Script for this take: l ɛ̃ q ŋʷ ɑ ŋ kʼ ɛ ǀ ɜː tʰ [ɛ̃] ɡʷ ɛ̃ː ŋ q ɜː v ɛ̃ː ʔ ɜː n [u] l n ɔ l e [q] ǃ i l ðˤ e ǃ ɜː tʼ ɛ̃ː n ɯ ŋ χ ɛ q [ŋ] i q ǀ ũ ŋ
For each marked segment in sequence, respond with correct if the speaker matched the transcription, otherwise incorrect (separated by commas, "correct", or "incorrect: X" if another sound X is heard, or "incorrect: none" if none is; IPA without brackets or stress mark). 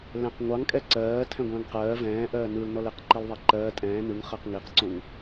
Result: correct, incorrect: ɯ, correct, correct